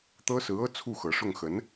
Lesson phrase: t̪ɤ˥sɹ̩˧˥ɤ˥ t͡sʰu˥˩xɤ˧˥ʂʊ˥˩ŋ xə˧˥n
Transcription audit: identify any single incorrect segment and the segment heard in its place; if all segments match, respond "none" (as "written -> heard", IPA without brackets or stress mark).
none